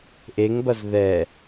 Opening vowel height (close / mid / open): mid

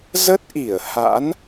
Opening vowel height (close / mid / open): mid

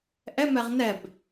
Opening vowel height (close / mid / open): mid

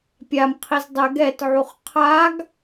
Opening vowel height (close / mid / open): open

